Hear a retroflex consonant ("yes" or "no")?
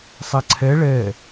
yes